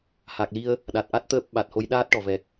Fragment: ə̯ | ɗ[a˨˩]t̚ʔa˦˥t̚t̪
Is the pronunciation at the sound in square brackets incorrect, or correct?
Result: correct